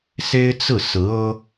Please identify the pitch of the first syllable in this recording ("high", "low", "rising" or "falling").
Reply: high